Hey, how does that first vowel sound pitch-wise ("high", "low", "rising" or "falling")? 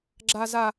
high